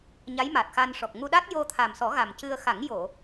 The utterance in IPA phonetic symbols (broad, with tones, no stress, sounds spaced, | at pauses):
ɲ a˧˥ j m a˨˩ t̚ x a˧ n ʂ ɔ˨˩ k̚ ŋ u˧ ɗ a˦˥ t̚ j o˧ t̪ʰ a˨˩ m s ɔ˨˩˦ ɣ a˨˩ m c ɨ˧ ə̯ x a˨˩˦ ŋ j o˨˩˨